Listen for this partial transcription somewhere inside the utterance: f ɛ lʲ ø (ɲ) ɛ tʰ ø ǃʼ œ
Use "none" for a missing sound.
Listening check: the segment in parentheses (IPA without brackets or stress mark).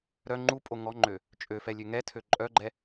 ŋ